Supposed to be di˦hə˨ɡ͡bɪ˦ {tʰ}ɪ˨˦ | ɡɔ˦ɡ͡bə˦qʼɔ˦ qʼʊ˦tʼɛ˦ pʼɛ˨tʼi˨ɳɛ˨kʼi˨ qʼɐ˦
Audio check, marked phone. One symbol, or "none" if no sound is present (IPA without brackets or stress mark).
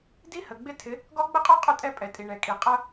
tʰ